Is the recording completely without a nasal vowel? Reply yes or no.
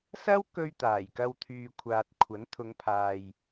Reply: yes